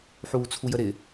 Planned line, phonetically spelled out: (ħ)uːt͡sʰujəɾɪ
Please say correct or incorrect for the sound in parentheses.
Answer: correct